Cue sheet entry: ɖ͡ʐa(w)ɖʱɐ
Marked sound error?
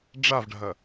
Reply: yes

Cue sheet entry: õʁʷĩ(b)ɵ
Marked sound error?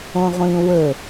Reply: yes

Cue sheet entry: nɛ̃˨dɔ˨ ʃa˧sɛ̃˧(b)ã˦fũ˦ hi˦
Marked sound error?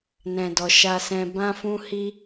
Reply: no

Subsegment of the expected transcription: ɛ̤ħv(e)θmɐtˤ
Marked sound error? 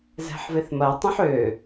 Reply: no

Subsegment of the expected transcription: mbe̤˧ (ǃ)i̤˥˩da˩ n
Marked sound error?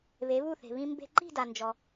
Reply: no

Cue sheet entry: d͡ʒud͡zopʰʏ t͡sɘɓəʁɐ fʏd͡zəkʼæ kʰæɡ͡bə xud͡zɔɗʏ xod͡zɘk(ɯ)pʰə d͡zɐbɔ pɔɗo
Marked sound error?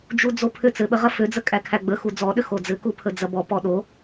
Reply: yes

